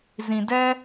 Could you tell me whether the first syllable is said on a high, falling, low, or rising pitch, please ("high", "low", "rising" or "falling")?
low